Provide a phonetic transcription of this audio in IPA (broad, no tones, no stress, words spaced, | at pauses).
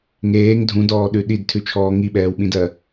ŋeːŋ dʱũdɔːɗʉ ɗidtʰʉt͡ʃʰɔː ŋiɓɛːwɓĩdɜ